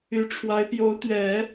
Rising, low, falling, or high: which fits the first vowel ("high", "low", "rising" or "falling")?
rising